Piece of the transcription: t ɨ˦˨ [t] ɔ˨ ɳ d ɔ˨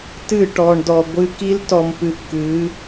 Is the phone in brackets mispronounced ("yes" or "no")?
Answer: yes